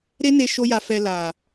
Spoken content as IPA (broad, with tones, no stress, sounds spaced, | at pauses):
ɾ e˦ n e˧ ʃ o˦ j a˧ f ɛ˧ l a˨